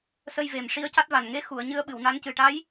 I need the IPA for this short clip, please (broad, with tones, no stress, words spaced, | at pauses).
sə˧jve˨˩m ʂi˧˥ə̯ca˦˥t̚va˨˩n ŋe˧˥xu˨˩˨ə̯ ɲɨ˧˥ə̯ɓɨ˨˩˨wna˧˥ncɨ˨˩ ʈa˧˥j